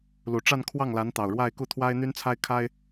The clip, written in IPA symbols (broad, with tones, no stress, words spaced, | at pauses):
lu˨˩ʈ͡ʂa˥˧n kʰwɑ˥˩ŋla˧˥nt̪ɑ˨˩ʊ̯ ɻwa˥˧ɪ̯ku˥˩ t̪ʰwa˥ɪ̯n̪y˥nt͡sʰa˥ɪ̯kʰa˥ɪ̯